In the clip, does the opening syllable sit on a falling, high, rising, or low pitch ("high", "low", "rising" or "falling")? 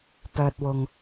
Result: low